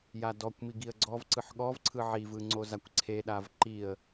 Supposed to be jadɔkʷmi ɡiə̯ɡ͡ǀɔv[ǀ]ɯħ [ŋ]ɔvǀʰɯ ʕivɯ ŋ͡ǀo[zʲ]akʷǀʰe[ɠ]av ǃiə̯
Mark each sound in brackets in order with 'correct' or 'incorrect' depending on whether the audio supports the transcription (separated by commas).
correct, incorrect, incorrect, incorrect